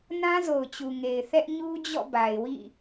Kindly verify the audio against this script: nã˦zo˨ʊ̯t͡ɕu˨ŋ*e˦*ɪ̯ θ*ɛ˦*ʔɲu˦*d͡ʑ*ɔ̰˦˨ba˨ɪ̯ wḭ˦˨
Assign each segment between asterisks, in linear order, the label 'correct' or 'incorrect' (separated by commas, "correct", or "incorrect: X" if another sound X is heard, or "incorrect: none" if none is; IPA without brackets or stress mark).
incorrect: e˨, correct, correct